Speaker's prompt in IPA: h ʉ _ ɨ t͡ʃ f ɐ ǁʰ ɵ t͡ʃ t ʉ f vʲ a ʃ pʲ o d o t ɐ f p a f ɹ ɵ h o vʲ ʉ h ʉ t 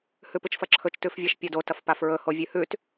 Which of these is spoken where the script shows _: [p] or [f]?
p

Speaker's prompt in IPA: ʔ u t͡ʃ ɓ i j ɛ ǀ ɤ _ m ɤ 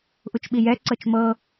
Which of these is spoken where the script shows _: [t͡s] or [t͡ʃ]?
t͡ʃ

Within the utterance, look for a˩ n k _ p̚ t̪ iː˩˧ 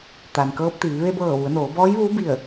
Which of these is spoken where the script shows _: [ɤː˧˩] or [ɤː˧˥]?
ɤː˧˥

